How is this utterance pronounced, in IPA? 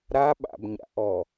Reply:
ɾ a ɓ a̰ b ɲ a̰ ʔ ɔ

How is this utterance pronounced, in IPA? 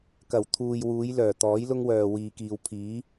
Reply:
k ɐ˨˩ w t̪ʰ uː˨ j w uː˨˧ j l œː˨˩ t̪ ɔː˨˥ j l ʊ˥ ŋ w œː˨ w iː˨ k iː˨ w pʰ iː˨˥

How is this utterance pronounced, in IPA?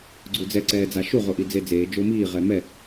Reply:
ɡ͡ǀ u d͡z ɛ ǀ ɛː d͡z a ʃ u ʁ o ʔ i d͡z e d͡z eː d͡ʒ o m iː ʁ ɛ m ɛ

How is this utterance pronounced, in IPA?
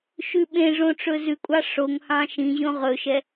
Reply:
ʃ ʉ ɓ ẽ ʐ õ ʈ͡ʂ ɵ z ʉ kʷʼ ɑ ʂ o ŋ h ɑ̃ ʃ ĩ ʑ õ ʁ ɵ ʃ ɛ

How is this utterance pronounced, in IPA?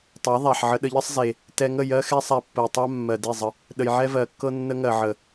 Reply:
tˤ a˨˦ ðˤ a˨ ħ ʕ ə˧ ɗ ə˧ ʎ ə˦ sˤ z e˨ | t ɛ˧ ŋ ə˦˨ j ɜ˧ x ɛ˧ sˤ a˧ pː ə˨ e̯ tˤ a˦ mː ɜ˨ d e˦˨ zˤ ə˧ | ɗ ə˨ j ʕ ɛ˦ v ɜ˨ kː ɤ˦ nː ə˦ ŋ ɜ˨ ʕ ə˨

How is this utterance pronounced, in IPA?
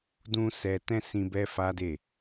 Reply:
d ũ˦ s ɛ˧ t ɛ̃˦ s ĩ˧ b ɛ˦ f a˦ d e˦˨

